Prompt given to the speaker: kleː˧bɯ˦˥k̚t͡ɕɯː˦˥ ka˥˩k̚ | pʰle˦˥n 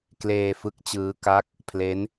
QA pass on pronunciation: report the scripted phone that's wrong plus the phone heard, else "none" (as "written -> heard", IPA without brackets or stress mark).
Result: b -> f